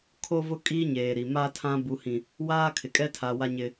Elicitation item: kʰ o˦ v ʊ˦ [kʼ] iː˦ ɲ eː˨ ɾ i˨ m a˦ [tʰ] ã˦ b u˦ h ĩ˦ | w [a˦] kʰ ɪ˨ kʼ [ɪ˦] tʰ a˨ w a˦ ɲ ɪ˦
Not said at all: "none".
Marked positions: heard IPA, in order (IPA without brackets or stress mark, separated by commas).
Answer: kʼ, tʰ, aː˦, ɛ˦